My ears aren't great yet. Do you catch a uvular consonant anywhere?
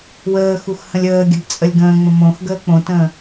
no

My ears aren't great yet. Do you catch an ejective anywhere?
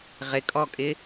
yes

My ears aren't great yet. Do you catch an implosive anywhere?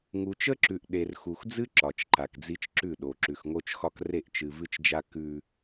yes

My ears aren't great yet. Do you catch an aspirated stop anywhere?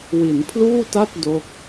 yes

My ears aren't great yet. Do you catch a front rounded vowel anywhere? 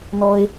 no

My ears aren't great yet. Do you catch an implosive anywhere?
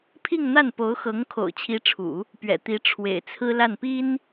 no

